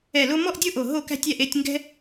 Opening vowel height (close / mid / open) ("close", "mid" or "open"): mid